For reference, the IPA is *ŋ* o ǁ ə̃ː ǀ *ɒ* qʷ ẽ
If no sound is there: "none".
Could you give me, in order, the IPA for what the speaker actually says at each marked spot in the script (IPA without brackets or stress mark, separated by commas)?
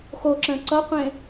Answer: x, ʌ